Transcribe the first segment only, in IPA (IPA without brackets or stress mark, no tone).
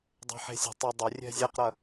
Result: dˤ